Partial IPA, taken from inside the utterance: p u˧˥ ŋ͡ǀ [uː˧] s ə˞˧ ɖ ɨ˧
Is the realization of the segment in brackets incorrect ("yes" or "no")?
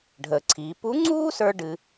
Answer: yes